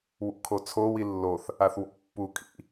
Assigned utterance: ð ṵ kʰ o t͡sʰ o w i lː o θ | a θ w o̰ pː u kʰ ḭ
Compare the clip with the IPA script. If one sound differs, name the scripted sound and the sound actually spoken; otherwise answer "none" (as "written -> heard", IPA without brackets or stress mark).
ð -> w